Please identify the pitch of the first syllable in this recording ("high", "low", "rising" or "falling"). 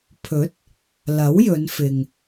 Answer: rising